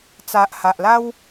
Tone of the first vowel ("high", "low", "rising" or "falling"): low